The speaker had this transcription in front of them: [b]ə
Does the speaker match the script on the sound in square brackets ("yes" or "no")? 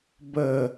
yes